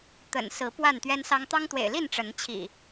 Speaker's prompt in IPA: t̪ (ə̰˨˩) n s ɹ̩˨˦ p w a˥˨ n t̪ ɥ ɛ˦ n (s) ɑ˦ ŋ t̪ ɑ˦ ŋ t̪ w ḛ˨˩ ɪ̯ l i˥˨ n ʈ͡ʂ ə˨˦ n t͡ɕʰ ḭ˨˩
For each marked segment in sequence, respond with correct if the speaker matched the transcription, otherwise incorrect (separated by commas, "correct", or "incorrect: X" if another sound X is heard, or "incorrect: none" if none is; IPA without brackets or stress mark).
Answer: correct, correct